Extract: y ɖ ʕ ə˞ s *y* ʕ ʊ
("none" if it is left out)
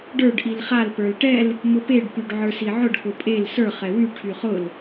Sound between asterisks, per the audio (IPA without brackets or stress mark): i